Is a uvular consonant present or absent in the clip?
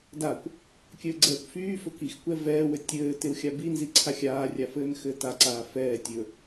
absent